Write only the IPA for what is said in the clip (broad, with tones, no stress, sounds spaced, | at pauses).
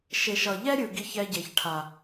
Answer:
ʃ e˨ ʃ ʌ˨ ʎ ɛ˦ ɾʲ ɯ˨ ɡ i˧ ç ɛ˧ ɟ e˨ ç ʈʰ a˨